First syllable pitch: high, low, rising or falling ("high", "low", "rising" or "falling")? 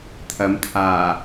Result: rising